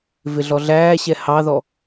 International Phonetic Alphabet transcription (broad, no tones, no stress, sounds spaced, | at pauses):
v ɪ ɮ ɔ ɮ æː ɕ ɛ h ɑ ð ɔ